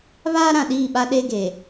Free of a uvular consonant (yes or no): yes